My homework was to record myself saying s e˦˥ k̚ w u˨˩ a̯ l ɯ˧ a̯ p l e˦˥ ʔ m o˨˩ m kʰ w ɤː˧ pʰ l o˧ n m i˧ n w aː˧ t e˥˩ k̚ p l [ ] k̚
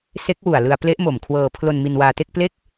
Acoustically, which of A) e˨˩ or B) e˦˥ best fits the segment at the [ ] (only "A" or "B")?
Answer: B